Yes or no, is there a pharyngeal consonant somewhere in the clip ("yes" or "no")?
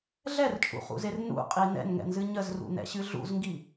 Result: no